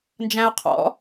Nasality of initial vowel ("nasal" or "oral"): nasal